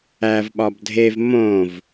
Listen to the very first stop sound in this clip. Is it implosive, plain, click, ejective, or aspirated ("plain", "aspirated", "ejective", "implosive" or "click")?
implosive